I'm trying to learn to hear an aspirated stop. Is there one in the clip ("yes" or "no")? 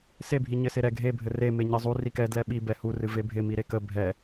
no